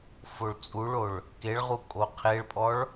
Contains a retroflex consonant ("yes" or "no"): yes